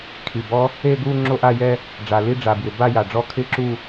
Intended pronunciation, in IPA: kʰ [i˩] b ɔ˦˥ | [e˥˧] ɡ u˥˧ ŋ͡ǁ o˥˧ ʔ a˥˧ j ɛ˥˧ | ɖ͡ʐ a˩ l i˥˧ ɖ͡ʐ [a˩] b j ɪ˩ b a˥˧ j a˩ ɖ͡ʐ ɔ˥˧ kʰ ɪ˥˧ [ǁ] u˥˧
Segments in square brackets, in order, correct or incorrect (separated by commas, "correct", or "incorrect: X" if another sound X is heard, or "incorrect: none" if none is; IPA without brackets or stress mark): correct, correct, correct, correct